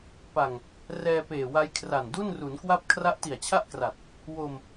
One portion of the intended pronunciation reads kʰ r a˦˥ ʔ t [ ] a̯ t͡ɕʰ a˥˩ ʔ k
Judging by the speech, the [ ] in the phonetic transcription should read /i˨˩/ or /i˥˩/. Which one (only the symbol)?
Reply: i˨˩